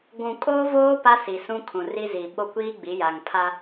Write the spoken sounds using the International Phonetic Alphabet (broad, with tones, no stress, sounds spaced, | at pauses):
ɡʷ ũ˨ kʼ oː˦ v oː˦ p a˦ s i˨ s ũ˦ kʰ ũ˨ r i˦ z i˨ ɓ o˦ kʷ iː˦ ɡ͡b i˨˦ j a˨ ŋ pʰ a˦